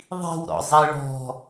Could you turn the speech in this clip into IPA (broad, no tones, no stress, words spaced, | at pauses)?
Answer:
ðˤi̤wɾɔ̰zˤe ɭɔ̤